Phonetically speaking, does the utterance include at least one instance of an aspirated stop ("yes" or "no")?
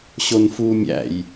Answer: no